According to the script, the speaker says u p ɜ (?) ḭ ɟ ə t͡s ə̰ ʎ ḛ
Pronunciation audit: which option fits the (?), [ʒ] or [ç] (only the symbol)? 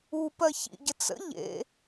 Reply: ç